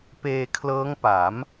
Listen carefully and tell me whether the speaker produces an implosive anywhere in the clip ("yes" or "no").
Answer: no